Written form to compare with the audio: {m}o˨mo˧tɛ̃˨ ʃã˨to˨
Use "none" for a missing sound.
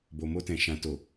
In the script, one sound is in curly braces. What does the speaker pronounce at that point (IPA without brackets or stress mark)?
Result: b